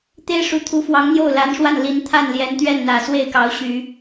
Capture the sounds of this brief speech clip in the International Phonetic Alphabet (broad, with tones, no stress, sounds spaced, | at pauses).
t̪ e˥ ɪ̯ ʂ u˧˥ t̪ʰ u˧˥ f w ɑ˧˥ ŋ n̪ j o˥˩ ʊ̯ l a˧˥ n ʂ w a˥˩ n l i˧˥ n t̪ʰ a˥˩ n l j ɛ˧˥ n t̪ ɥ ɛ˥˩ n n̪ ä˨˩ s w e˥˩ ɪ̯ k ɑ˧˥ ʊ̯ ɕ y˨˩˦